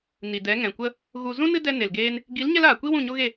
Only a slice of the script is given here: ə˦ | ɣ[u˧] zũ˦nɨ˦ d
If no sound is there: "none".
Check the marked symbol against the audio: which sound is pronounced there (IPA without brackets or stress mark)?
u˨